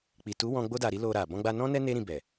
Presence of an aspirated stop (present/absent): absent